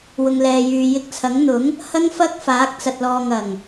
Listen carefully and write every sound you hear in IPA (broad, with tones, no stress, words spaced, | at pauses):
wʊ˨ŋlɛː˨jyː˨ jɪ˧k̚t͡sʰɐ˨˥ŋn̪ʊ˨˥ŋ | hɐ˥ŋfɐ˥k̚faː˨˥k̚ t͡sɐ˨t̚lɔː˨ŋɐ˨˩ŋ